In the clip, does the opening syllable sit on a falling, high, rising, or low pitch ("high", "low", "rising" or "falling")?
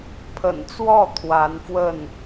low